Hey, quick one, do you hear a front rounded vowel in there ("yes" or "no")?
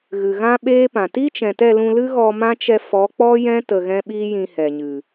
no